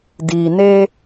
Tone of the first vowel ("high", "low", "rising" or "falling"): low